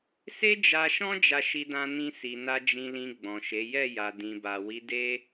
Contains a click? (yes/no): no